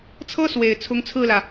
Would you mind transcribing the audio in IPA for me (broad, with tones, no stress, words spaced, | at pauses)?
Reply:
t͡sʰɤ˥ swe˨˩ɪ̯ t͡sʰʊ˧˥ŋt͡sʰɹ̩˥˩lä˩